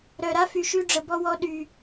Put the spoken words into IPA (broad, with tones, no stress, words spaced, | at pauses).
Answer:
ɾœ˨ɾa˦fy˨ʃy˧ ɖ͡ʐə˨bɔ˧wɔ˧ ɗy˨